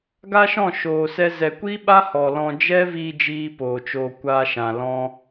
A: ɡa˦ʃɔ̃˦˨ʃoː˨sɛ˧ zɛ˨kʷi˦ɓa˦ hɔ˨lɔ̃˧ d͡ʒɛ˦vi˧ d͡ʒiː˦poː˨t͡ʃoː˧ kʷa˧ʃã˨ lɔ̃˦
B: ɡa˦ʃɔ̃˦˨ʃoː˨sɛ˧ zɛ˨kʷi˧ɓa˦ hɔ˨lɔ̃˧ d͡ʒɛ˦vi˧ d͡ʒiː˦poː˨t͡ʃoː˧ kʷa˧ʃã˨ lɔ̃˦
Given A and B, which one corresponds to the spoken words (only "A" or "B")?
A